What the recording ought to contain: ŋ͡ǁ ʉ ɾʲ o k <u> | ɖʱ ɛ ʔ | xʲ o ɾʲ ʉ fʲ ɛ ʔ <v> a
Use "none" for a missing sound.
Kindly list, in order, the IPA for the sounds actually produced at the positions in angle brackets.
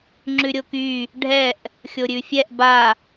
y, b

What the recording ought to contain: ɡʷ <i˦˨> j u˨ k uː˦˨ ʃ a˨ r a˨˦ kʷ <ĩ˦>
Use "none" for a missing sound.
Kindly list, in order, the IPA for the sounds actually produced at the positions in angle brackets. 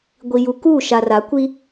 i˨, i˦

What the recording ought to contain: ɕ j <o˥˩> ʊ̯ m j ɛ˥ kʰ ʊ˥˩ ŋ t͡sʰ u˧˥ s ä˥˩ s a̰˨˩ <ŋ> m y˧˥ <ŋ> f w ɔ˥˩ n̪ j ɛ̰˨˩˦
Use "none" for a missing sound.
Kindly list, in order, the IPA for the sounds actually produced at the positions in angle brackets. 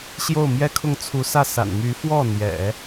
o˥˩, n, none

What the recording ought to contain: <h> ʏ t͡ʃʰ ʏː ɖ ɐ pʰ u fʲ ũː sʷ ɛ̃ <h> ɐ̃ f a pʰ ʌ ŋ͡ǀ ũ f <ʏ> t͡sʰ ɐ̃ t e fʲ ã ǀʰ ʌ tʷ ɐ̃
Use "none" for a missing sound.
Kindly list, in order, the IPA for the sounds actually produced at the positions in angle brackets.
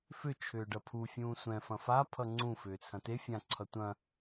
f, f, ʏː

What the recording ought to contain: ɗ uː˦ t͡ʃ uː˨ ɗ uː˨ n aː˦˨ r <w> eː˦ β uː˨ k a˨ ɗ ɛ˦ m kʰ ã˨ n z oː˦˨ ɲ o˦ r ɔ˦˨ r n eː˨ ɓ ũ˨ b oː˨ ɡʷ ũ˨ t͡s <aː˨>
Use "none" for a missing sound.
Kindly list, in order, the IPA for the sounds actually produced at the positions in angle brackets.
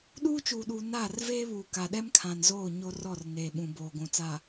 v, aː˨

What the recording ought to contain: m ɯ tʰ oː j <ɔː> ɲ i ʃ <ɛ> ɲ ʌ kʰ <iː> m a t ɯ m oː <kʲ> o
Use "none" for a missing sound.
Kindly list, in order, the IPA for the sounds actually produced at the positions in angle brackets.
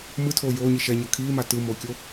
oː, ɛ, iː, kʲ

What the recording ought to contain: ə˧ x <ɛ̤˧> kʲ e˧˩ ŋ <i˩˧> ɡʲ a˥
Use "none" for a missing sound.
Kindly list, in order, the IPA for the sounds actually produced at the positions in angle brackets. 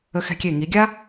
ɛ̤˧, i˩˧

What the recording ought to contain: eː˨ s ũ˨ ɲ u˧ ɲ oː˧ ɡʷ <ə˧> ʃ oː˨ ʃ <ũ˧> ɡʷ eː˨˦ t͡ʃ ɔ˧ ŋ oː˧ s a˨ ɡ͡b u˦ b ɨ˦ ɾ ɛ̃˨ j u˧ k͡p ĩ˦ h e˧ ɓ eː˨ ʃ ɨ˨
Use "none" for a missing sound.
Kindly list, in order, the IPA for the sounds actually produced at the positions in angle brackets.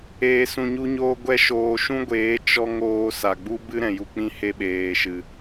ɛ˧, ũ˦

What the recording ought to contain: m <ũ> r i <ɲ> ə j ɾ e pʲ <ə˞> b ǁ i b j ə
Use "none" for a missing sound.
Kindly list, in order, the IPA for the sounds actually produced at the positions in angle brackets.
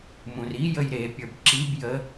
ũ, j, ə˞

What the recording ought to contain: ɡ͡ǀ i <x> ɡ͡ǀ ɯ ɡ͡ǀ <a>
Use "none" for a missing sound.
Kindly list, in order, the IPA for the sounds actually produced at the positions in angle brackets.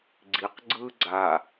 q, a

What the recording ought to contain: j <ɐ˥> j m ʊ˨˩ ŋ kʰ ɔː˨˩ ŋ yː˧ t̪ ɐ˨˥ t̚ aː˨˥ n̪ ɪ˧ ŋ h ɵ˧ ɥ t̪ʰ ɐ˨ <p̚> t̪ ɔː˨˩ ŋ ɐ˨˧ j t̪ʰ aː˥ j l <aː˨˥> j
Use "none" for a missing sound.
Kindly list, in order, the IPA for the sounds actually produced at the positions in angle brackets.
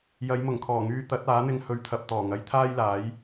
ɐ˨˧, p̚, aː˨˥

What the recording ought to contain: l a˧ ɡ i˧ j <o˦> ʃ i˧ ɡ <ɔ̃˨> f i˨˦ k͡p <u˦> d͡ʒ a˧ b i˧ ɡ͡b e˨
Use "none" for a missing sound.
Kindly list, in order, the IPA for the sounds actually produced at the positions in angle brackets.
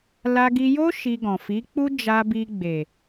o˦, ɔ̃˨, u˦

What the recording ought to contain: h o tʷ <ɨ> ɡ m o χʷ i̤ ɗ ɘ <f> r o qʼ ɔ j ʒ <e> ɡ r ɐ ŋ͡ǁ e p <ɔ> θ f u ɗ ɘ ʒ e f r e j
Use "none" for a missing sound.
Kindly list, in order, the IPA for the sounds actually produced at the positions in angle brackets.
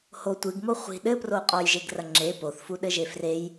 ɨ, p, e, o

